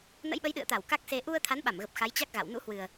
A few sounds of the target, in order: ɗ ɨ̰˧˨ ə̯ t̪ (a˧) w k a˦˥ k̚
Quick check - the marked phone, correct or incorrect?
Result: incorrect